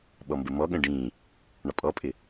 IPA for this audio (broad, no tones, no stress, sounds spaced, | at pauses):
ɓ ɔ m b ə m ɔ ɠ ə̃ ɖ ĩ | ɳ ɒ pʼ ɔ pʼ ɪ